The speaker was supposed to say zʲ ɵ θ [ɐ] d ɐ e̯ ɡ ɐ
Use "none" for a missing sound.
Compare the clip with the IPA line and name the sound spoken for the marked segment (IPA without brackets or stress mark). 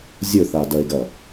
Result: a